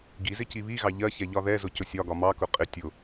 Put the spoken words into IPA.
ɡizɪ ciβiɣɑ ʎɜçɛ ʎɒðɛzʊ cʊsʲɒɡɒ mɑkʊ qʼɪ tʲʊ

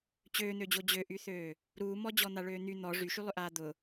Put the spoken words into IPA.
t͡ɕøːn̪ød͡ʑo d͡ʑøʔyθøː | ɾuːmɔ d͡ʑɔn̪aɭøːn̪y n̪ɔ ʐyʃylˠʏʔaː d̪ʊ

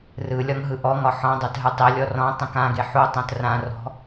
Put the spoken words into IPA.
rɯlʲɒŋɦɯ ʔɔŋɒ ħɔ̃dˤatɦɯ tˤilʲɔ rɔ̃ tˤĩkãɡe ħu tˤõtrãrɔ̤

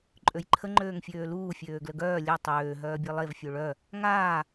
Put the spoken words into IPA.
ǃʼøjǃʰə ŋ͡ǃøːŋfʲøːluː fʲøːɡləɡœː lʲœ tˤøː ɦœːbʲelˠev fʲøɭœ | ŋaː

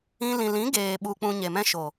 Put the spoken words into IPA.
ĩ˧ lĩ˨lĩ˨˦ɡeː˨ ɓu˧k͡pũ˧ ɲe˨mɛ̃˧ʃo˨

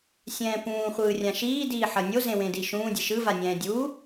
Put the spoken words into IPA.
sʲɛ̃ːpũː χʷɯːrʲãʃiː diːħʌnʲo zẽwẽdiʃũː dʲeʃɯ vanʲɛ̃ːdʲuː

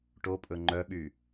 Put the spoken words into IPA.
ʈopʼɵ ŋ͡ǃœɓy

